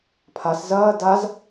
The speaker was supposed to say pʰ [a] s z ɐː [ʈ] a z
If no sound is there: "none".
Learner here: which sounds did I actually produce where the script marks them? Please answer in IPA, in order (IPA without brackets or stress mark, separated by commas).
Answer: a, d